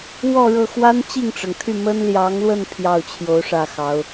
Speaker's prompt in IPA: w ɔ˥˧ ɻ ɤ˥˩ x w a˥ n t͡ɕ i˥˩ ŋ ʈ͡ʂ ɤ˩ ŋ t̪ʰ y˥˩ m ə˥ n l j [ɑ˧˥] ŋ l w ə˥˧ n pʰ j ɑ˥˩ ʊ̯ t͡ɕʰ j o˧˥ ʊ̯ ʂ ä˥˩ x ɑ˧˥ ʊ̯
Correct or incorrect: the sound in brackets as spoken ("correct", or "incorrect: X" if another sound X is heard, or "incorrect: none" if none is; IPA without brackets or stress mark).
correct